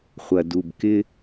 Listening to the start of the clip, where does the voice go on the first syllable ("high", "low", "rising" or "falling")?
low